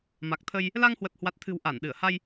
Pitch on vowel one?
low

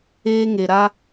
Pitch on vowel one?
high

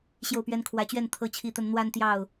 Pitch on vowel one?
falling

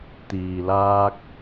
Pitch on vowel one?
low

